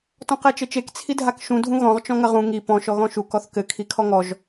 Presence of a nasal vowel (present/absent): present